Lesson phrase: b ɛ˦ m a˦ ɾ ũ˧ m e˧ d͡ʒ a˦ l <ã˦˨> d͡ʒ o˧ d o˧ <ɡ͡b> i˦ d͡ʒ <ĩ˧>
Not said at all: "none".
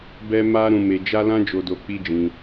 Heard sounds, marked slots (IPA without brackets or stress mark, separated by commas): ã˦, k͡p, ĩ˧